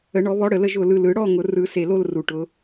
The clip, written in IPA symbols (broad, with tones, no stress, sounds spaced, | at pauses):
ə˨˩˦ ɳ ɔ˨˩˦ β ɔ˨˦ ɽ ə˨˩ l ə˥˨ ʒ ʊ˨˩ l ɯ˨˩ l ɯ˨˩˦ ɽ ɔ˥˨ ŋ ʊ˨˩˦ r ɯ˨˩˦ s e˨˩ l o˥˨ l r u˨˩ ʈ ʊ˨˦